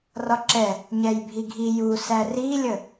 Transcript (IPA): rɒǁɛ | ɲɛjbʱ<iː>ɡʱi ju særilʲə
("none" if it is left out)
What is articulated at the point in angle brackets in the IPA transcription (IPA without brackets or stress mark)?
i